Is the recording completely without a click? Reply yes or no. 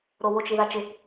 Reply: yes